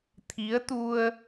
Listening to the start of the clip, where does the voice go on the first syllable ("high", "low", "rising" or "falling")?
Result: rising